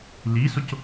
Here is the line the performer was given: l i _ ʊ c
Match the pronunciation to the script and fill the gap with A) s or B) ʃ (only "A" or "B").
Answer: A